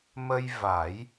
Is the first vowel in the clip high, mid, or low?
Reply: mid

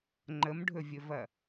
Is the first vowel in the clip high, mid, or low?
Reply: mid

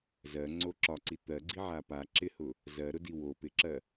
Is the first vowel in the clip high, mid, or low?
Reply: mid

